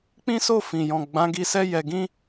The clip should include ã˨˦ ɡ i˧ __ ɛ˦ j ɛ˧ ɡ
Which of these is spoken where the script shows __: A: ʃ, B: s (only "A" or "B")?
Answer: B